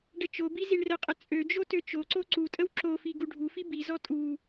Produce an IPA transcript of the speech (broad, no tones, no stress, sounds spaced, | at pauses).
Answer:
ɖ ə t͡ʃ o b i z i ɳ r ə qʼ ə t͡sʼ ø d͡ʒ o t ø t͡ʃ o ǀ o ǀ u tʼ ə w ǁ o f i ɡ u ɖʱ u f i b i z ɔ tʼ u